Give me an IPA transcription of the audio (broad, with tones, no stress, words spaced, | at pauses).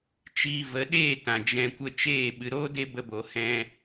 t͡ʃiː˧ və˨˦ɗeː˦˨ tã˨d͡ʒɛ̃˧kʷə˦ t͡ʃeː˦˨ ɓɨ˨ɾoː˦ de˦bə˧bo˨ hɛ̃˧